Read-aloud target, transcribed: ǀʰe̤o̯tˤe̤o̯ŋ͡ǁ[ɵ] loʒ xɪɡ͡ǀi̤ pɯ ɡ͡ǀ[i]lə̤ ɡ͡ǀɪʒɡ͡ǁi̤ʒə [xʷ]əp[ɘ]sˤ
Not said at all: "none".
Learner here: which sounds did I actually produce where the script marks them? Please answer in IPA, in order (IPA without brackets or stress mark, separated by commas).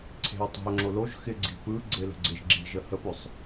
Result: o, ɪ, h, ø